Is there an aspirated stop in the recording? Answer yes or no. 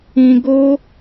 no